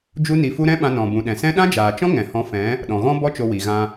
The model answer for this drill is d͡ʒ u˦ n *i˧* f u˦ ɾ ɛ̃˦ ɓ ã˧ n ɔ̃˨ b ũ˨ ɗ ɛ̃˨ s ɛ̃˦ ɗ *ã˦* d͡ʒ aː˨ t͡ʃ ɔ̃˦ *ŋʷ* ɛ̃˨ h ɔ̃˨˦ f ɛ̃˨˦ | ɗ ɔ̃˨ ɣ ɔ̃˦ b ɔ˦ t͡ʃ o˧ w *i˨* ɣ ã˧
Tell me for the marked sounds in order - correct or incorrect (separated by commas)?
correct, correct, incorrect, correct